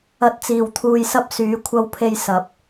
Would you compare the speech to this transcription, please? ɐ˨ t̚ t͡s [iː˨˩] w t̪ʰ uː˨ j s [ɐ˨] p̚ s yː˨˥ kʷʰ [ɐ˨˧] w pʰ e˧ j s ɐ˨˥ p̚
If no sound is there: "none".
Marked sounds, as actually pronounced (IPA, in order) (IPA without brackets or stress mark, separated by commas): iː˨˩, ɐ˧, ɐ˧